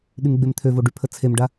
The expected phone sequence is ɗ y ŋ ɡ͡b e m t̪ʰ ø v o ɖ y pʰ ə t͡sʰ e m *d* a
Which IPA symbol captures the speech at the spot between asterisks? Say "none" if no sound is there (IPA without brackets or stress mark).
ɖ